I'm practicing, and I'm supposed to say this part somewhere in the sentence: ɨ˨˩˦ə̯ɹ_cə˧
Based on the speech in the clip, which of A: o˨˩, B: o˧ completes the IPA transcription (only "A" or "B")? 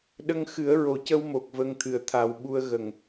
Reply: A